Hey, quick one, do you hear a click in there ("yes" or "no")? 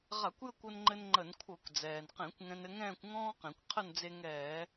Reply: yes